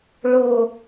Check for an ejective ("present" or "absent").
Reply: absent